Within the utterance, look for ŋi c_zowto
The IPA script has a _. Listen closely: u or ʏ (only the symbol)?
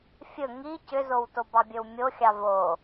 ʏ